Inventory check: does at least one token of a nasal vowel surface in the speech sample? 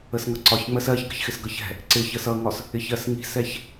no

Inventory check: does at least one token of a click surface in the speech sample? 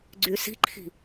yes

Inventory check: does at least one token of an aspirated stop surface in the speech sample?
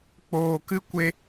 no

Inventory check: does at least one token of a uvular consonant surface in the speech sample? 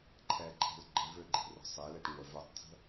no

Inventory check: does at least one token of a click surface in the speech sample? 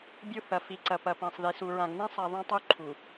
yes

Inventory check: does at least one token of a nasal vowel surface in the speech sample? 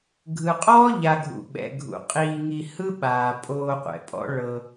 no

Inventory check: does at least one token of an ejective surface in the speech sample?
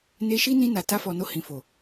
no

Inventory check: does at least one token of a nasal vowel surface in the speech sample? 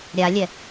no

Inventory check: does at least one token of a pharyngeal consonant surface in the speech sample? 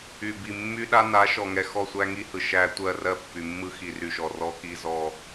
no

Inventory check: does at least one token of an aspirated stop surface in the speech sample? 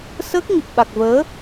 no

